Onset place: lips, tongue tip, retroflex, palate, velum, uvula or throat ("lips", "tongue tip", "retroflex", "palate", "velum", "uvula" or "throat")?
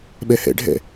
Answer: lips